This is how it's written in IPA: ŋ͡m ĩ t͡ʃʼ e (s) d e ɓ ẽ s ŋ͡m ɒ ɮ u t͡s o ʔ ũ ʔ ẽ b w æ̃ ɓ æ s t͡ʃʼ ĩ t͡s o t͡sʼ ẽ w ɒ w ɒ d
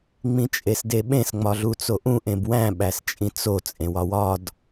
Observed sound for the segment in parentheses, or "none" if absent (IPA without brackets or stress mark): s